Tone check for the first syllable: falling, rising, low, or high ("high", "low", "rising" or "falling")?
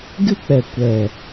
high